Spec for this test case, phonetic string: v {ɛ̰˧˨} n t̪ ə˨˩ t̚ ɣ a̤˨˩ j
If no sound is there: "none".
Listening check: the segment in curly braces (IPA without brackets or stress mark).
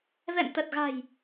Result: ɛ̰˧˨